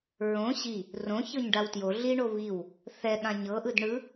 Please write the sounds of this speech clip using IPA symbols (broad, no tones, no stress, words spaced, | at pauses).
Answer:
ɹõ ɕi | rõ çɤɲɖawtjo ɮiɳo βiw | θɛɠã ɲɤʔɯd ɳɯ